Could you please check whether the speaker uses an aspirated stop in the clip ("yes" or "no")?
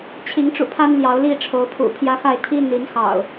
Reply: yes